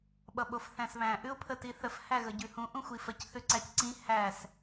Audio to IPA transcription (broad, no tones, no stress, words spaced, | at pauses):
ɓʌɓofθæ̃sβæ̃ ʔʉʊ̯pʰətiθəf hæɣəɟʉhũ ʔũxʷifəc θʉǀæcǀĩ hæs